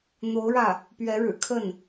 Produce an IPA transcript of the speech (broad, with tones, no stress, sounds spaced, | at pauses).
n̪ o˧˥ ʊ̯ ɻ ä˥˩ | p ɥ ɛ˧˥ ɻ ɻ̩˨˩ kʰ ə˥˩ n